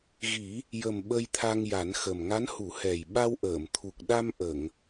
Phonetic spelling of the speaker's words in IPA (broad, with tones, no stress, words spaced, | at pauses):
ɣi˨˩˦ | jə˨˩m ɓə˧jt̪ʰa˧ŋja˨˩˦nxə˨˩m ŋa˧˥nhu˨˩˦hɛ˨˩j ɓa˧wʔəː˨˩˨m t̪ʰu˨˩k̚ɗa˧m ʔə˨˩˨ŋ